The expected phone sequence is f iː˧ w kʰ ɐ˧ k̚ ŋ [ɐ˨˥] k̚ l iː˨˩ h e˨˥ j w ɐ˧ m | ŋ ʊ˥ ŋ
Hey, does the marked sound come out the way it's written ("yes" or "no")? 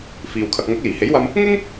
yes